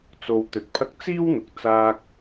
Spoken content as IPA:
t͡s o˧ w t̪ ɵ˨˥ t̚ pʰ ɐ˥ k̚ t͡s iː˥ w n̪ ʊ˨ k̚ t͡s aː˧ k̚

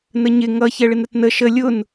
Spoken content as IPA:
n ə ɲ ɪ ŋ ʌ ç ɛ ɭ ɪ n ɾ ə t n ə ʃ ə lʲ ʊ n

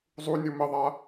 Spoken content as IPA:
zˤ u nʲ u m ə ðˤ a

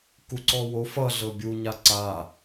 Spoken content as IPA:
k u ǀ ɔ w o f ʌ ɮ ɤ bʲ u ɲ a ǀ a

